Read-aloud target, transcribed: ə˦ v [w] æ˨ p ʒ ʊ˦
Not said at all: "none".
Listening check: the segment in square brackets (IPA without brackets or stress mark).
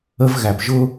ɣ